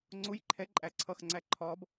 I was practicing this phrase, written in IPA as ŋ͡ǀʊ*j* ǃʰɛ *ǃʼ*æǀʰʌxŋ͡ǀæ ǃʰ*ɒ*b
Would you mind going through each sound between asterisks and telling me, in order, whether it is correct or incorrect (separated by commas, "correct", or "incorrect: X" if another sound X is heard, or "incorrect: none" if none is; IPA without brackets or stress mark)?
correct, correct, correct